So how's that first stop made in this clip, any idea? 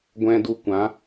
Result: plain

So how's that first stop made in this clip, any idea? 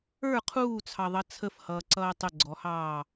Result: aspirated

